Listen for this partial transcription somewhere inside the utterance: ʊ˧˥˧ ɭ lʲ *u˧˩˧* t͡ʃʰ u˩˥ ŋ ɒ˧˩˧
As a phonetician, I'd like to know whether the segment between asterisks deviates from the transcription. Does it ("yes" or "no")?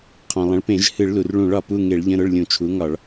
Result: yes